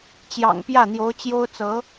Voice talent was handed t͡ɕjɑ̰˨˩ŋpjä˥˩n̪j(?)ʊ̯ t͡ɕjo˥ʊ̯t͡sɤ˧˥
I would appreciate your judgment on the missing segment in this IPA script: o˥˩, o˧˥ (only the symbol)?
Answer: o˧˥